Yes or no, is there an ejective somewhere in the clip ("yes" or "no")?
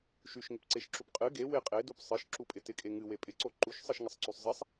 yes